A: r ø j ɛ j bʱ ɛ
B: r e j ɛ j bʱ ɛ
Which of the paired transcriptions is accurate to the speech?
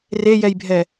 B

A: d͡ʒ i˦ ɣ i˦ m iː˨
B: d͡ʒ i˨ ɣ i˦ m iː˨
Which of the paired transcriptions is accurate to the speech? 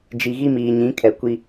B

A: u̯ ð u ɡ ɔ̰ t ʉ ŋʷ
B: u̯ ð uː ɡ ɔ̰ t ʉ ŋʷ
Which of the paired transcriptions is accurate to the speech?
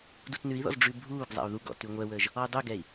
A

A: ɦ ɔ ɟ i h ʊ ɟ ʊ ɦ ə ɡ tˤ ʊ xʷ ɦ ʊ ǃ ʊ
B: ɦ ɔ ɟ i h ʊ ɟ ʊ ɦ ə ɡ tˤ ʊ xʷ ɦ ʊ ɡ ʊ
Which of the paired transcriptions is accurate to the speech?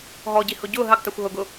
B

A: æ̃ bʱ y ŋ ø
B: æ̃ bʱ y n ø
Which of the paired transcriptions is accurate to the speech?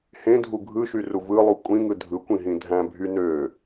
B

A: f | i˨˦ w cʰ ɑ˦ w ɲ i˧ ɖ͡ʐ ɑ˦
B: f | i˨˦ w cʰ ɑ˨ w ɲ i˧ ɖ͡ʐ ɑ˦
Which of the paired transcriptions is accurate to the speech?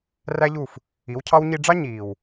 A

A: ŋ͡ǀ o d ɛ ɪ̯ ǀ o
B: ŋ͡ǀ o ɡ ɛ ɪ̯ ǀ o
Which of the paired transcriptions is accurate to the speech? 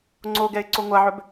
B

